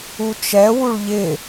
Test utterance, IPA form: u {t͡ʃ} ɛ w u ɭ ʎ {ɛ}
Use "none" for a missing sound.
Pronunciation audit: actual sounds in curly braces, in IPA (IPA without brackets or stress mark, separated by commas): t͡ʃ, ɪ